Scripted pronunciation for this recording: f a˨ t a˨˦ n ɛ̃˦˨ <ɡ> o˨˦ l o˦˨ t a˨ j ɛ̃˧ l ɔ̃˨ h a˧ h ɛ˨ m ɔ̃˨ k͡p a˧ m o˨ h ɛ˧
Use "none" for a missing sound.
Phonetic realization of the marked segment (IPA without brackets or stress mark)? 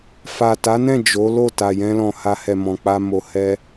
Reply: d͡ʒ